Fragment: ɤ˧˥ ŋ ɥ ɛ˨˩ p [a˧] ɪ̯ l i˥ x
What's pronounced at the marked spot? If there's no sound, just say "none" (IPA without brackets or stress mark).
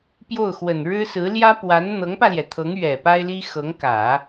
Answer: a˥